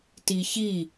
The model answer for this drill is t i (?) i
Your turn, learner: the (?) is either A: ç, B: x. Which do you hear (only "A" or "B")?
A